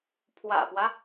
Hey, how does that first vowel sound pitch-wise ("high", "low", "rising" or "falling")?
low